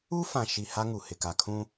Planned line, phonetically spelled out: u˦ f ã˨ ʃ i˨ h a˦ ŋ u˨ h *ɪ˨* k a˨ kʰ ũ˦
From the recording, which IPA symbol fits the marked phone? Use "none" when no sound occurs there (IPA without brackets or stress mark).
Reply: ɪ˨